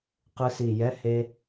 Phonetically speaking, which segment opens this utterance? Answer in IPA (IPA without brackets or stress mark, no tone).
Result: q